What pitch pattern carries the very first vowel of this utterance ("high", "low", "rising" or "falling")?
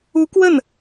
rising